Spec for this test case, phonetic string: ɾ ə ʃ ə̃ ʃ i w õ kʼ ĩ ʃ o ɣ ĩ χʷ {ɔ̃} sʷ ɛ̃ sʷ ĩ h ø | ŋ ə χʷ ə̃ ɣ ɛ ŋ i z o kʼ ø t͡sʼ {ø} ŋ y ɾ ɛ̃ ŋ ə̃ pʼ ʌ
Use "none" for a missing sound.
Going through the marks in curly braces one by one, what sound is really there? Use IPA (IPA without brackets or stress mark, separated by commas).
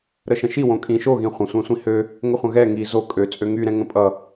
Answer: ə̃, ø